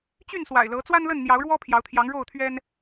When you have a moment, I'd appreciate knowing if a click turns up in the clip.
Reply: no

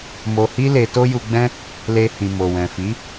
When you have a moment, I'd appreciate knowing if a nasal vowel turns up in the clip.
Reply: yes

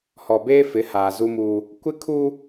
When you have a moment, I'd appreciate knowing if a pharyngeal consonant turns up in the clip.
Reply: no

